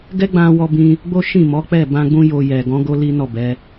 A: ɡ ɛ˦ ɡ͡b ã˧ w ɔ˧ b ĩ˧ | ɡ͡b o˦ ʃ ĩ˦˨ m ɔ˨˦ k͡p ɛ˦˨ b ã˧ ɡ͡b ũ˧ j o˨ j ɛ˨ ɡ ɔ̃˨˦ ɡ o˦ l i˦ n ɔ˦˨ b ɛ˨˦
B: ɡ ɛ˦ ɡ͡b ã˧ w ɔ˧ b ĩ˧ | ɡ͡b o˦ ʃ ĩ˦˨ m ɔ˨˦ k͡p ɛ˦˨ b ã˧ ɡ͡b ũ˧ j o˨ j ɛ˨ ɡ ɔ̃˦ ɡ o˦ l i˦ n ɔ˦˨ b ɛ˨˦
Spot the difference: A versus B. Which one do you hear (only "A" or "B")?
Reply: A